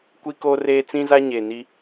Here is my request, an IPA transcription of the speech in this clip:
kʷ i˦ k oː˦ r eː˦ t͡s ĩ˦ z a˦ ɲ eː˨ n i˦

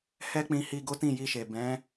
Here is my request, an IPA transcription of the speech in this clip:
h ɛ˦ k͡p ĩ˧ h i˧ ɡ o˦ t ĩ˦˨ j i˧ ʃ e˨ b ɛ̃˨˦

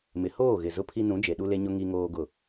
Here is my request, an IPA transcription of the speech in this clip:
m ɪ˨ h oː˦˨ ɣ ɪ˨ z ʊ˦ pʰ i˦ n ũ˨˦ d͡ʒ e˨ ɗ u˦ l e˦ ɲ ʊ˦ ŋ i˦ ŋ oː˦ ɡ ʊ˦˨

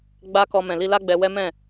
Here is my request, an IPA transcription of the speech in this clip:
ɡ͡b a˦ k ɔ˧ m ɛ̃˨ l i˧ l a˦ ɡ͡b ɛ˧ w ɛ˦ m ɛ̃˦˨

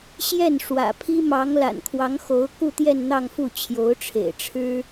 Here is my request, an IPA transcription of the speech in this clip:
ɕ j ɛ˥˩ n ʂ w ä̰˨˩ pʰ i˥ m ɑ˧˥ ŋ l a̰˨˩ n kʰ w ɑ˧˥ ŋ x o˧˥ ʊ̯ k u˥˧ t̪ j ɛ˥˧ n n̪ ɑ˥˧ ŋ f u˥˩ t͡ɕʰ j o˧˥ ʊ̯ ʈ͡ʂʰ ḛ˨˩ ɪ̯ ʈ͡ʂʰ ɻ̩˥

